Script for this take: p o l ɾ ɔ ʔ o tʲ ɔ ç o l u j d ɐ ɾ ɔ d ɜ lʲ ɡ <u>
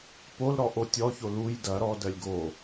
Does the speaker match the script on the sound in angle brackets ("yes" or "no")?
no